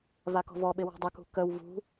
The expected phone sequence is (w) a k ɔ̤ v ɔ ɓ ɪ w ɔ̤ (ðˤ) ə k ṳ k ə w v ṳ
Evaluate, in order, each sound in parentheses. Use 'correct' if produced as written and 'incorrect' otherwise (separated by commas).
incorrect, incorrect